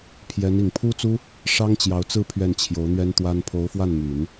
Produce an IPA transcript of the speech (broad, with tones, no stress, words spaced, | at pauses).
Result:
pʰjɛ˧˥n i˨˩ŋ pʰu˥t͡su˥ | ʂɑ˥ŋ t͡ɕjɑ˧˥ʊ̯t͡sɹ̩˥˧ pʰɥɛ˥˩nt͡ɕʰjo˧˥ʊ̯n̪ɥɛ˥nt̪wa˥n pʰo˧˥ʊ̯fwa˥˩n my˨˩˦n